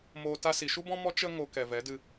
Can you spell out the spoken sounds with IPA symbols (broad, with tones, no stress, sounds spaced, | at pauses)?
m oː˨ t a˧ s i˨ ʃ u˦ b ɔ̃˦ m ɔ˦ t͡ʃ ə˧ ŋ o˧ k ɛ˨ v ɛ˨˦ d ɨ˧